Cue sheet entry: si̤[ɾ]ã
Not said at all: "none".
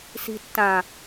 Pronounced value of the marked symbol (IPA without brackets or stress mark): tː